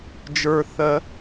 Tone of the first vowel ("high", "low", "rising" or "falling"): low